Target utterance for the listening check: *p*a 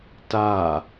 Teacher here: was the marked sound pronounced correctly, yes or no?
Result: no